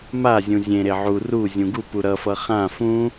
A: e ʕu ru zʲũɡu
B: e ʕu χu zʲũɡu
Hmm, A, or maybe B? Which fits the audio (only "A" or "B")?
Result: A